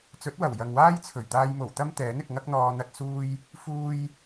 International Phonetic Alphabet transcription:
t͡sɵ˨˥t̚wɐ˨˩w jɐ˨ŋwaː˥jt͡sʰɵ˨˩ɥt̪aː˧j mo˨˩wt̪ɐ˥m t̪ɛː˨˥nɪ˨k̚ ŋɐ˥k̚n̪ɔː˧ n̪ɐ˥t̚suː˥j | fuː˧j

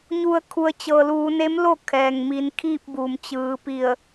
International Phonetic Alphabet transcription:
ɲu˩ə̯kʰu˩ə̯ t͡ɕɤː˩luː˩˧ne˧˥mlo˥˨ kʰɛː˩ŋ miː˩˧nkʰiː˥˨p̚buː˩m t͡ɕɯː˩˧pi˧˩ə̯

